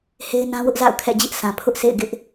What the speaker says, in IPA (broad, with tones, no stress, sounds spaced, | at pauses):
h e˦ ɪ̯ n ã˦ w ʊ˦ ʔ z a̰˦˨ ʊ̯ kʰ ɛ̰˦˨ d͡ʑ ɪ˦ ʔ sʰ ã˨ pʰ ʊ˦ ʔ sʰ ḛ˦˨ ɪ̯ ɡ ɪ˦ ʔ